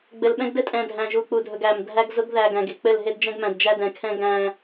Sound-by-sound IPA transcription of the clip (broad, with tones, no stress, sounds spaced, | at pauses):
ɡ͡b ɘ˨ l ɓ ɛ̃˦ ɡ d ɘ˦ tʼ ɛ̃˨ dʱ æ̃˨ ʒ u˨ k͡p u˨ dʱ ɵ˨ ɡ æ˨ m dʱ æ˦ ɡ z ʊ˦ ɡ ð æ˨ ɡ æ̃˨ ɡ e˨ k͡p ɘ˦˨ l ɦ e˦ d d͡ʒ ɛ̃˦ ɡ m æ̃˨ d d͡ʒ æ˦ d ɛ̃˨ kʰ ɛ̃˦ ɡ æ̃˦